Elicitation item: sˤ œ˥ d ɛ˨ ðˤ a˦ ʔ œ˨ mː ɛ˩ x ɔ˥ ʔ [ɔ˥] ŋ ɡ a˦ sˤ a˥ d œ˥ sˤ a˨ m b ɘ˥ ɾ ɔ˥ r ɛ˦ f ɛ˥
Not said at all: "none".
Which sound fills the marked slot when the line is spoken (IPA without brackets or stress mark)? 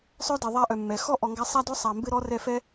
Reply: ɔ˨